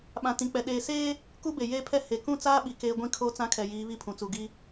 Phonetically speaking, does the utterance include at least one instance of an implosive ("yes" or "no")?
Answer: yes